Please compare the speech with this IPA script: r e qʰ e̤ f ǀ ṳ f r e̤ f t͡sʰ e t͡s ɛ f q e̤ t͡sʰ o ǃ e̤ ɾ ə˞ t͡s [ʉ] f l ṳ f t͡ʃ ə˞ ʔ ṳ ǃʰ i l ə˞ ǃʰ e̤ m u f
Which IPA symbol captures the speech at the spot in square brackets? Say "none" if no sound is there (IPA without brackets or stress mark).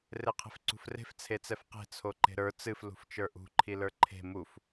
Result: ɨ